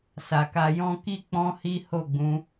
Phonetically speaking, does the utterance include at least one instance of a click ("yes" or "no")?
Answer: no